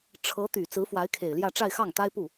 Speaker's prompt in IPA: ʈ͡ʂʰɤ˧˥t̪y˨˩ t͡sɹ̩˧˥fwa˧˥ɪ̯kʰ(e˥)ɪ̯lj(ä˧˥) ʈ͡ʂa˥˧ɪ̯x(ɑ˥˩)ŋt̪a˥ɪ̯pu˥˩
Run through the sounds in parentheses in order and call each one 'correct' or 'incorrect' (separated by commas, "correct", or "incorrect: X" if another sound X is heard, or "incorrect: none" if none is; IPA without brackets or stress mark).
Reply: incorrect: e˨˩, incorrect: ä˥˧, correct